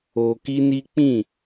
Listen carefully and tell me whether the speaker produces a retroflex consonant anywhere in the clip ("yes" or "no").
no